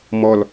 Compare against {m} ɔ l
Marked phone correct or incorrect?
correct